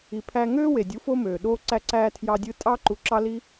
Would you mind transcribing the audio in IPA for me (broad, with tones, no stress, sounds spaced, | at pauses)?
i˨ pʰ æː˧ ŋ øː˦ w e˨ dʲ u˨˦ f o˦ m øː˨ ɗ oː˧ ǀ æ˧ ǀ æː˧ tʰ j ɑ˧ dʲ ɯ˧ tʼ ɑː˦ ǃ u˧ ǁ ɑ˦ l i˦